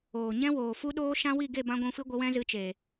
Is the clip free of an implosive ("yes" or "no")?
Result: no